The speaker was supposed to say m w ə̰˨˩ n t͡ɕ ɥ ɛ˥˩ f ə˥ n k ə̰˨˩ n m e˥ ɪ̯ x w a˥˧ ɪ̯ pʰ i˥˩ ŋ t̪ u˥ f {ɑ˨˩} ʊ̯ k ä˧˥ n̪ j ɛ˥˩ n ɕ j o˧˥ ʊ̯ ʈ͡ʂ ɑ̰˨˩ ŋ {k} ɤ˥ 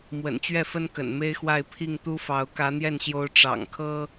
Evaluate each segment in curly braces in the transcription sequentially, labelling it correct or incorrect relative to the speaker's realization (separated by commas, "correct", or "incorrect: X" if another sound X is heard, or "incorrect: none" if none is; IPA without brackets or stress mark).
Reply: incorrect: ɑ˧˥, incorrect: kʰ